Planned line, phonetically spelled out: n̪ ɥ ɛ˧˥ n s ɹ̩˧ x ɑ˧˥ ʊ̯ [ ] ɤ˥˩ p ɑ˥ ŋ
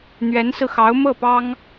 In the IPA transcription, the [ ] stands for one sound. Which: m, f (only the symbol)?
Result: m